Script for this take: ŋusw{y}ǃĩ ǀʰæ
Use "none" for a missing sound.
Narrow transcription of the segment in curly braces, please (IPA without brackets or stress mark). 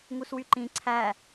y